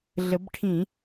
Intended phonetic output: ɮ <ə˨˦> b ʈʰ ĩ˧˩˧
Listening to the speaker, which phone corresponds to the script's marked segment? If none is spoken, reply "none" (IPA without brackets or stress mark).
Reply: ə˨˦